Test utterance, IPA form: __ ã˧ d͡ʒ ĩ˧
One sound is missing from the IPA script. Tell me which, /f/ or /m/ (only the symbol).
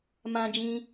m